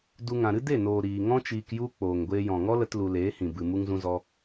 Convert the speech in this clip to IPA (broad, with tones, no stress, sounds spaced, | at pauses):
d u˧ ŋ ã˨ ɾ ɨ˦ d e˦˨ n oː˨ ɾ iː˨ ŋ ɔ̃˦ t͡ʃ iː˧ k j u˦ k͡p oː˨ ŋ ɡʷ eː˧ j ɔ̃˨ ŋ ɔ˦ l ə˦ t l u˧ l eː˨˦ h ĩ˨ b ɨ˧ m u˦ ŋ z ũ˦ z ɔ˦